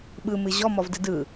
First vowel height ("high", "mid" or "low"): high